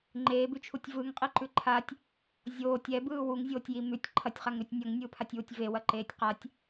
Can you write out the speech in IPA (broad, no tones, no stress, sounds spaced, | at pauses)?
ŋ͡ǃ eː b ʉ t͡ʃʰ u tʲ v ɯ ŋ qʼ i ǃ ʉ ǃʰ a tʲ | zʲ oː tʲ ɛ b ɯː w u ŋ zʲ oː tʲ j i m ʉ tʲ ǃʰ ɐ tʲ χ a ŋ ɾ ʉ tʲ nʲ ɐ ŋ nʲ ɯː pʰ a tʲ w u tʲ v e w ɐ ǃ eː tʲ q a tʲ